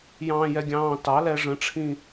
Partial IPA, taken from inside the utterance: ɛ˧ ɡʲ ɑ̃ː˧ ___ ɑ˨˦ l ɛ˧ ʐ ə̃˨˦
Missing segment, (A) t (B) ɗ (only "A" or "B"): A